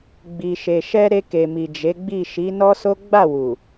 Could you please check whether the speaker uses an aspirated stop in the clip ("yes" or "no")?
no